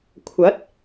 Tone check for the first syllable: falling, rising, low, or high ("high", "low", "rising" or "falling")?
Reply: rising